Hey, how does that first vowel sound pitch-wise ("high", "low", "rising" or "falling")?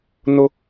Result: high